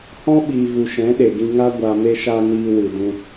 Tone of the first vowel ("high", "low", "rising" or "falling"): high